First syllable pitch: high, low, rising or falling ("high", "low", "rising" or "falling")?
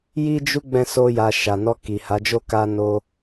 high